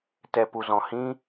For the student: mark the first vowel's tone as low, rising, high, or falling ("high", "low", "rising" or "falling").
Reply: low